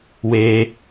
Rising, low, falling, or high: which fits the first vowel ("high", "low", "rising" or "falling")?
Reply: high